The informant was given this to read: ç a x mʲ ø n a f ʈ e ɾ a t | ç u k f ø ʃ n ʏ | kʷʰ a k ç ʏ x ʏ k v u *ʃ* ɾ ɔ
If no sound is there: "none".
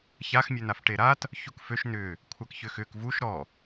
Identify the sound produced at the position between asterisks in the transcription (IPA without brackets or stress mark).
ʃ